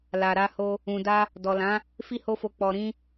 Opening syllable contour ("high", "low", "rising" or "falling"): low